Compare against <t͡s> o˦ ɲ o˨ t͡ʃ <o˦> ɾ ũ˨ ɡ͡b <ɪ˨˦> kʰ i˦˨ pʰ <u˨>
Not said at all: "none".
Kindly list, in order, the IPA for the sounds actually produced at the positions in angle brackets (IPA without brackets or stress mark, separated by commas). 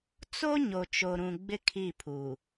t͡s, o˨, ɪ˦, u˨